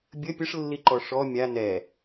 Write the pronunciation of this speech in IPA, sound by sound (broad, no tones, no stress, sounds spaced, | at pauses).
bʲ ə pʲ ə ʂ lː i ǃ ɔ ʂ ɔ mʲ a n ɛ